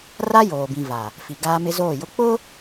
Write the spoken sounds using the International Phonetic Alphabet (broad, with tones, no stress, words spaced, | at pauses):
ra˦joː˨bĩ˨ va˨ | fi˨ ɡaː˦mɪ˦zoː˦˨jʊ˦ k͡pʊ˦